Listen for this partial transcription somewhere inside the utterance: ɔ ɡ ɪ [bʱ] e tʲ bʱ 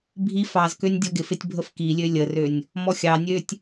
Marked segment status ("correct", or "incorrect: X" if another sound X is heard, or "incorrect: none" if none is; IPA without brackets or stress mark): incorrect: f